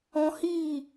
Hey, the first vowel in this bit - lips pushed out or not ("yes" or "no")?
yes